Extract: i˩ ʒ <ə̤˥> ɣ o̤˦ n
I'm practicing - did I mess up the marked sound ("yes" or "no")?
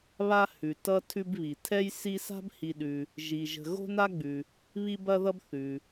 yes